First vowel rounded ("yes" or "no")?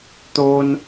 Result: yes